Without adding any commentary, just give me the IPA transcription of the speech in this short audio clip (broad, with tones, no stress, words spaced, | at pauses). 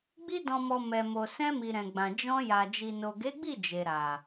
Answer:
ɡ͡bi˧dɔ̃˨mɔ˨ mɛ˨ mo˨sɛ̃˧mi˨ ɾɛ̃˨ɡ͡bã˨ d͡ʒɔ̃˧ja˨ d͡ʒi˨no˨ɡe˨˦ɡ͡bi˦˨ d͡ʒe˨ɾa˨